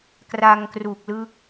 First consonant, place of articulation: velar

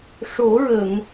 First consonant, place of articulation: retroflex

